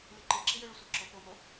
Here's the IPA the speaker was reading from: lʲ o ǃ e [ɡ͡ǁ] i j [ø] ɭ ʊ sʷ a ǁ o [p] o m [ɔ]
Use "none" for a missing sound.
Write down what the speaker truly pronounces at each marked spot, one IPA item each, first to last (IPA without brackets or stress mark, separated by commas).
ǁ, ø, p, o